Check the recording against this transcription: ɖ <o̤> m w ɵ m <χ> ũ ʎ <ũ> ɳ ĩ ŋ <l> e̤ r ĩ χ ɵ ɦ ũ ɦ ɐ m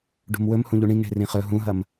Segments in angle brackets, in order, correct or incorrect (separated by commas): incorrect, incorrect, incorrect, incorrect